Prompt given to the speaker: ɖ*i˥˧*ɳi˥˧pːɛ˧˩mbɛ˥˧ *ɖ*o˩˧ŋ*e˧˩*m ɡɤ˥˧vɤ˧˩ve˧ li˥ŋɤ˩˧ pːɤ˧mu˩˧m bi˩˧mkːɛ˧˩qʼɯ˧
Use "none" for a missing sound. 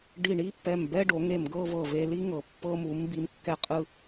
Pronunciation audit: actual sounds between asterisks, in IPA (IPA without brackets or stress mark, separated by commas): i˧˩, ɖ, e˧˩